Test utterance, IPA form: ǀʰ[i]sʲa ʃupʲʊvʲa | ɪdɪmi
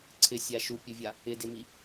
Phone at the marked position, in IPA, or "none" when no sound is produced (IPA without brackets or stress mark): ɪ